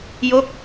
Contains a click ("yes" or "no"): no